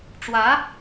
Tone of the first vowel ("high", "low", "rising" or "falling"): rising